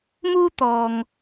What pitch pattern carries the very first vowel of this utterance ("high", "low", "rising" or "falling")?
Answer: high